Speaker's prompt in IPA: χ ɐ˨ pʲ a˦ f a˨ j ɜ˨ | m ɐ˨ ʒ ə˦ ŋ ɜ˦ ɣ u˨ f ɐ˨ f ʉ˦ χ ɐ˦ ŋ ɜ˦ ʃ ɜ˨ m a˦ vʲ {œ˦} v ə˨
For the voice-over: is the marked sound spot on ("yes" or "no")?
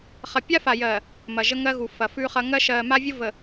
no